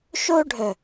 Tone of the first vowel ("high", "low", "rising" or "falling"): high